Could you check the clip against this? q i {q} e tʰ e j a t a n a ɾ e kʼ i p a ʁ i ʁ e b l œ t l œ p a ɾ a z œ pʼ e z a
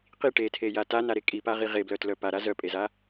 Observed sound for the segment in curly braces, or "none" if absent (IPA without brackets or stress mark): ʈ